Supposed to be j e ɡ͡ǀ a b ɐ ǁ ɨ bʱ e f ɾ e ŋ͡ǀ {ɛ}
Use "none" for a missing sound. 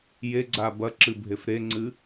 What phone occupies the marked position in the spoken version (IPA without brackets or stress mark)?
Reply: ɨ